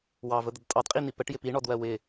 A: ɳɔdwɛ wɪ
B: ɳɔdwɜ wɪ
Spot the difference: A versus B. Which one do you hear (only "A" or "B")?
B